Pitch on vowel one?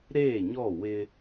falling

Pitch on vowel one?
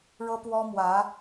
high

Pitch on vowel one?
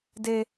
high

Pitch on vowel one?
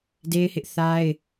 high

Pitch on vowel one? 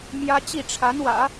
high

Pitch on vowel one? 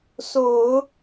low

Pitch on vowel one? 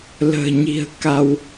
low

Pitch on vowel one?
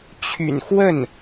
low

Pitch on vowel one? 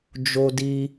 high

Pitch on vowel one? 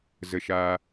falling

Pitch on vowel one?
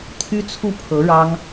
high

